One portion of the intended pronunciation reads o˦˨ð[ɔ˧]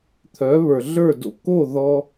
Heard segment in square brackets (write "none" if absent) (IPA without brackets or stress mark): ɔ˧